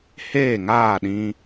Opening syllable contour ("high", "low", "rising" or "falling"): falling